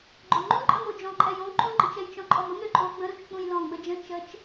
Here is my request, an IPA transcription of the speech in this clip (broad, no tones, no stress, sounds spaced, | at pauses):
ɡ͡ǃ o ŋ͡ǃ ũ ǃʼ ə m o d͡ʒ ɔ̃ ǃʼ ɛ j õ ǃ ũ ɡ͡ǃ ə̃ t͡ʃ ɛ j t͡ʃ ɔ̃ ǃʼ ɔ m ə m ɾ ø ǃʼ o ɡ͡b ə̃ ɾ ũ t͡ʃ k͡p ũ j l ɔ̃ ɡ͡b ə d͡ʒ ə̃ t͡ʃ ə t͡ʃ